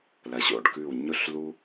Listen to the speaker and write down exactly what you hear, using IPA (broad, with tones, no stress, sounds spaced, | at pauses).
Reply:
l ɐ˨ ɕ o̰˥˩ ɖ k ʉ˥˩ w ɲ ɵ˥ ɬ l u˥